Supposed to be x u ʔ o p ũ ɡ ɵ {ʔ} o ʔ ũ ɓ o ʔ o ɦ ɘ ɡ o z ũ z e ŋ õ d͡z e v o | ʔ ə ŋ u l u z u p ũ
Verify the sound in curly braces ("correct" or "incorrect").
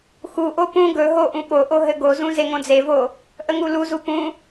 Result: incorrect